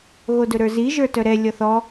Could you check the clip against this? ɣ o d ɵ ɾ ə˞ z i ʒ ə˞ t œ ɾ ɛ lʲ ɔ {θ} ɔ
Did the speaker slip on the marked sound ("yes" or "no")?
no